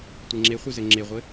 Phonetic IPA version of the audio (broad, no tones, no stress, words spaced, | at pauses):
tʷeŋ͡ǁeχʷɨ zɘŋ͡ǁeʁʷɘ